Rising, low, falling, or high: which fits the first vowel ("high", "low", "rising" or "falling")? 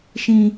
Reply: high